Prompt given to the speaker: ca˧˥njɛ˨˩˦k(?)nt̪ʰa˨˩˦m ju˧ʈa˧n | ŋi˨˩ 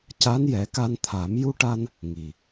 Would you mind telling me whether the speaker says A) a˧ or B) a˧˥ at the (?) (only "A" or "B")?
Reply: A